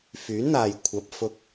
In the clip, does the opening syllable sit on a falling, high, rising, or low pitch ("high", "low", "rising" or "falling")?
rising